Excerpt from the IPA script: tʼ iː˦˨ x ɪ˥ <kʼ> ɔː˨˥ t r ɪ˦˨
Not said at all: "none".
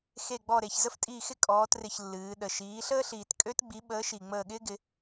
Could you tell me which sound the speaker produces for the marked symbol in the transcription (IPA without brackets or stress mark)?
kʼ